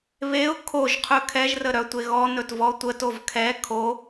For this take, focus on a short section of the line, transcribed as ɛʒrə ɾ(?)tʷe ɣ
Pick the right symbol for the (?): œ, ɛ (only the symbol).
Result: œ